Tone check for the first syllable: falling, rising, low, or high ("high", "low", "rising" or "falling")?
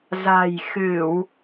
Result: low